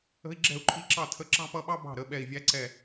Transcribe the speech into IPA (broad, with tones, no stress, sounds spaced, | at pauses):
ə̤˥ i̯ ɡ͡ǁ ɛ̤˥˩ u̯ ǃʼ i˧˥ ǁ ɑ˥˩ tʰ ə˧˥ ǁ ɑ̤˥ p ʌ˧˥ ɓ ɑ˥ b ɑ̤˥˩ ɾ ə˩˧˩ ɓ ɛ˧˩ i̯ vʲ æ˧˥ ǀ ɛ˧˩